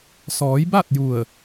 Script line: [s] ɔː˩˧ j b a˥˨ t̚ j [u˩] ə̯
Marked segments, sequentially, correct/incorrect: correct, incorrect

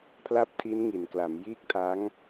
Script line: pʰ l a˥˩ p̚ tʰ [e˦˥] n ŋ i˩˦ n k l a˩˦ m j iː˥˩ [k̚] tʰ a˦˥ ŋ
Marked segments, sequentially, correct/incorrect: incorrect, correct

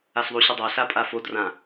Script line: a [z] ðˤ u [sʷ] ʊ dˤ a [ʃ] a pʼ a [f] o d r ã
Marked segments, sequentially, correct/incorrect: incorrect, incorrect, incorrect, correct

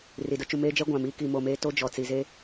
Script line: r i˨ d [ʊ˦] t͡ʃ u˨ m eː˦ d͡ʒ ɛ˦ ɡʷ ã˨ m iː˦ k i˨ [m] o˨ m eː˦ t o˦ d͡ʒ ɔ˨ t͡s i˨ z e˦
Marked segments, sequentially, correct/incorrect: correct, correct

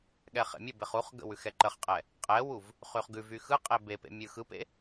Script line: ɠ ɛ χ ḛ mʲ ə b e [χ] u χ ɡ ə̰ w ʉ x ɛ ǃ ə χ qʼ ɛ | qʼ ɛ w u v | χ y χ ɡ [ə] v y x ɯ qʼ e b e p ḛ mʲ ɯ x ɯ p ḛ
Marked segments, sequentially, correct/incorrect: correct, incorrect

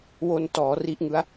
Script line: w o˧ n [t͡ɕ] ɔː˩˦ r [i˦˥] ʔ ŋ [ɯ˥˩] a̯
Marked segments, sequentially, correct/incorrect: incorrect, correct, incorrect

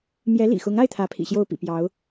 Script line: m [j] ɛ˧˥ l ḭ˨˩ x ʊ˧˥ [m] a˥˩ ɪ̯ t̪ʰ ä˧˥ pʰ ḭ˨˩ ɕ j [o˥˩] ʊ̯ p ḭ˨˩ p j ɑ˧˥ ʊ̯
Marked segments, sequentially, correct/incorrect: correct, incorrect, correct

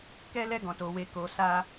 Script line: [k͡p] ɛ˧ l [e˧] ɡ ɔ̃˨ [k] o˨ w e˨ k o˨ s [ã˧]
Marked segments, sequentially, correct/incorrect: incorrect, incorrect, incorrect, incorrect

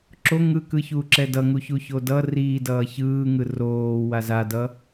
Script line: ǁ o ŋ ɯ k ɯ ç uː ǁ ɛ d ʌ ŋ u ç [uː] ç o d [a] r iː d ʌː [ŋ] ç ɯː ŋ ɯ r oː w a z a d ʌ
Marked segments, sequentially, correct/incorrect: incorrect, incorrect, incorrect

